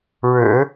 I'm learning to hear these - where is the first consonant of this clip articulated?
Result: retroflex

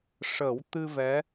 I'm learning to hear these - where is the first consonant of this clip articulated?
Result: retroflex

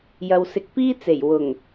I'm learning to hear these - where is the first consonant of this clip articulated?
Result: palate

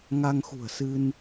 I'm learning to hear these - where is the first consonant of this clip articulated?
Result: velum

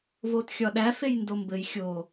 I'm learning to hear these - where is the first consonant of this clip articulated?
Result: lips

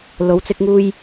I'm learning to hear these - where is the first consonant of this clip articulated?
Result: tongue tip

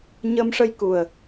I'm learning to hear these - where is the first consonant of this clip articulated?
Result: palate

